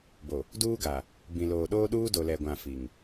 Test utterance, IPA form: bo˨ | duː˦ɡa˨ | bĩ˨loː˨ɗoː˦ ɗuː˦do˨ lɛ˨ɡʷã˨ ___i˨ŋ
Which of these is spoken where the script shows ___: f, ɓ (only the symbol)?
f